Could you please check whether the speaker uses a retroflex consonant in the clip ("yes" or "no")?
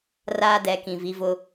no